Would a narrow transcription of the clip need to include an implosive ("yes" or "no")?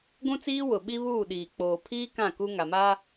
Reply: yes